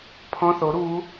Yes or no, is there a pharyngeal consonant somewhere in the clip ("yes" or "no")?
no